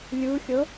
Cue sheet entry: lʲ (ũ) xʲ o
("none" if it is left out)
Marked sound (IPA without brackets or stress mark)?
u